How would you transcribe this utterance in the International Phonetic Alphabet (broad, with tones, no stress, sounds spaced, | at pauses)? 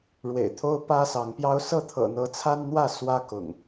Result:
ɻ w ḛ˨˩ ɪ̯ t̪ʰ o˦ ʊ̯ p ä˦ s ɑ˨˦ ŋ p j ɑ˦ ʊ̯ s ɤ˥˨ t̪ʰ ɤ̰˨˩ n̪ ɤ˨˦ t͡sʰ a˦ n n̪ w ä˥˨ s w ä˦ k ʊ̰˨˩ ŋ